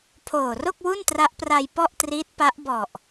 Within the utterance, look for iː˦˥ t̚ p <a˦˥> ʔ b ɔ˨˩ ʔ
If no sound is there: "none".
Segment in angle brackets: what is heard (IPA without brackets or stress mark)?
a˦˥